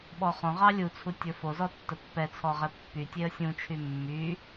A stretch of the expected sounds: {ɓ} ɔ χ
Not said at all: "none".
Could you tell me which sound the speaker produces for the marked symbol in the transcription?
ɓ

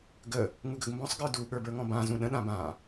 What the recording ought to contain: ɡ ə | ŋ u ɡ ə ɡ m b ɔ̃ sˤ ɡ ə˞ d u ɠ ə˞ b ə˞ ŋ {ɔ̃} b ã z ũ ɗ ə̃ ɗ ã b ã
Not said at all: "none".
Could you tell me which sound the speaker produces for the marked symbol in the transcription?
ɔ̃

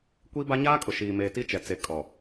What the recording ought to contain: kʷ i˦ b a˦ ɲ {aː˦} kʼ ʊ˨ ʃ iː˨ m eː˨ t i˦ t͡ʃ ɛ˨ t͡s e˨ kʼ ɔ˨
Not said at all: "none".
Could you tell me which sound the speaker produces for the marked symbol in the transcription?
aː˦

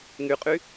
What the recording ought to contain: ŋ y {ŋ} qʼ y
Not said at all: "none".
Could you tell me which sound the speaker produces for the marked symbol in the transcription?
none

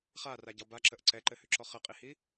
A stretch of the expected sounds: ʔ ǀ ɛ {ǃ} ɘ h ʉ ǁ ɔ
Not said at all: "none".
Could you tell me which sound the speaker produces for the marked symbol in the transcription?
ǃ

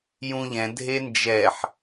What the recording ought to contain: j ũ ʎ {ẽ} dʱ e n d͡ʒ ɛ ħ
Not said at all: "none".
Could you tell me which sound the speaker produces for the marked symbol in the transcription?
ɛ̃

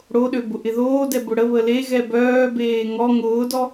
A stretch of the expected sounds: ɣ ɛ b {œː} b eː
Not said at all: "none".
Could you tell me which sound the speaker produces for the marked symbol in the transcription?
œː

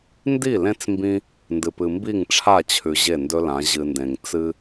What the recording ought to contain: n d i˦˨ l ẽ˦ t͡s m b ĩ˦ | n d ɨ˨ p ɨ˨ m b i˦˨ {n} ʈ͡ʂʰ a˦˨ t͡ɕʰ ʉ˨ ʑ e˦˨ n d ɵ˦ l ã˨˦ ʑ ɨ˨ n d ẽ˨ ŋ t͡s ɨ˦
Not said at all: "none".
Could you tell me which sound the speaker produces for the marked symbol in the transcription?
ŋ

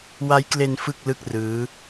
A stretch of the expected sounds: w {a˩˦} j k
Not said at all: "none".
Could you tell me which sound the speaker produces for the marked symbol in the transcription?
a˦˥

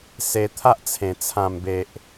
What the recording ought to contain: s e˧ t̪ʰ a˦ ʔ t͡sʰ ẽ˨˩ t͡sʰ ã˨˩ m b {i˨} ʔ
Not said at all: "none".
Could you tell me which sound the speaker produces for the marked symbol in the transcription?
e˨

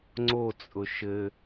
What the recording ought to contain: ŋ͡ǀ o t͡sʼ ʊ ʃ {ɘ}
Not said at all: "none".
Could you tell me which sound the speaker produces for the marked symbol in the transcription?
ɘ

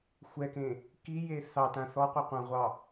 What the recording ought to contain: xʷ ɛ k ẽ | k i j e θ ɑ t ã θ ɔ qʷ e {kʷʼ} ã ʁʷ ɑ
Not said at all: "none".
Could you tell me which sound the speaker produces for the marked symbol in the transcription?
qʷ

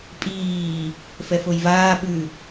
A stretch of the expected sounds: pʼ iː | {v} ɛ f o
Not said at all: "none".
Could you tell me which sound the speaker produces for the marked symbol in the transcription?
f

